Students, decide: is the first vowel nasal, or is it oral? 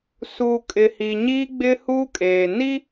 oral